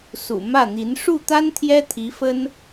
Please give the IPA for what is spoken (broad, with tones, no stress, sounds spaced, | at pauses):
s ṵ˨˩ m ä˥˩ n̪ i˧˥ n ʂ u˥˩ t̪ a˥ n t̪ʰ j ɛ˥ t̪ʰ i˧˥ f ə˥ n